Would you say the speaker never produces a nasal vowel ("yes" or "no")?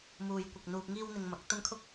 yes